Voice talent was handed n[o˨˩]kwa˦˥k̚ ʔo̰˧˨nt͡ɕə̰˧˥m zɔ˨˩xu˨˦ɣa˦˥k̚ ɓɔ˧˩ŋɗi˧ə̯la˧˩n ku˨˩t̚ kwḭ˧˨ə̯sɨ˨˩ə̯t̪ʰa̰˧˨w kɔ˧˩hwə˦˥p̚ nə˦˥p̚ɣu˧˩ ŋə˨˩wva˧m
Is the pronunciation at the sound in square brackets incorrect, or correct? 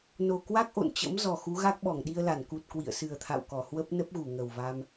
correct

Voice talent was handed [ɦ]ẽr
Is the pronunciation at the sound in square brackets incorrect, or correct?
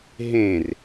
correct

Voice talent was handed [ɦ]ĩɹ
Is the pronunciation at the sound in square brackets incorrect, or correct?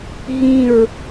correct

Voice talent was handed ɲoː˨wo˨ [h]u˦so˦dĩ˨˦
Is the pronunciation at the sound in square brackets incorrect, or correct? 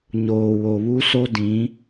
incorrect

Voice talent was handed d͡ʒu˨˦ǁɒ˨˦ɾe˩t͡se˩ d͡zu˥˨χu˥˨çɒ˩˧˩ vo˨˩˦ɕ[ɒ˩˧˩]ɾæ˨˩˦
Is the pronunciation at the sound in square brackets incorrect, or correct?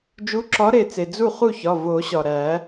incorrect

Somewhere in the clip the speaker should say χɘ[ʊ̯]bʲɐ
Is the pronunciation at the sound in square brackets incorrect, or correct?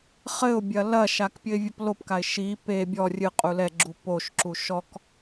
correct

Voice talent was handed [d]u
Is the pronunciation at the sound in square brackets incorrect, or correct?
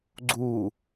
incorrect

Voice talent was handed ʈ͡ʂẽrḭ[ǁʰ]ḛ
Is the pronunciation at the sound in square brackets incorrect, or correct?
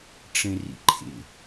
incorrect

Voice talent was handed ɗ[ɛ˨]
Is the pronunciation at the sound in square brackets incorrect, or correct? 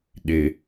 incorrect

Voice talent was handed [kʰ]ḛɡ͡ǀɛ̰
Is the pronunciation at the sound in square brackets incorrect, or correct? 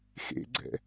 incorrect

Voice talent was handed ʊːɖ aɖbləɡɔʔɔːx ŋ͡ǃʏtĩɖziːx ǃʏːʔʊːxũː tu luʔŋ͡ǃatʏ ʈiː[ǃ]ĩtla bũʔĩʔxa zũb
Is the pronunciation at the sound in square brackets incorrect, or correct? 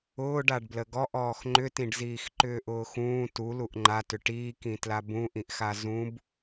incorrect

